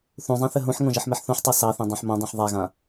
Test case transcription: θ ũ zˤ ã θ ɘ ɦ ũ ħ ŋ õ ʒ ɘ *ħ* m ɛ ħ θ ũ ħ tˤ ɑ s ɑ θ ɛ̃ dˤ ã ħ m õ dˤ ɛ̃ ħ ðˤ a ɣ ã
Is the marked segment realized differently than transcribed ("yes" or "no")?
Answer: no